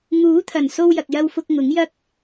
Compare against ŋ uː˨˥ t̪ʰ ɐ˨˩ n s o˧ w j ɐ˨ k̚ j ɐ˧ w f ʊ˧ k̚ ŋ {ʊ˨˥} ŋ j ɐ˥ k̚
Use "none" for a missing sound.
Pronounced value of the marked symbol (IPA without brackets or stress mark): ʊ˨˥